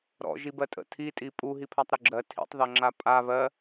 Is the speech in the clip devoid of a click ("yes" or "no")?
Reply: no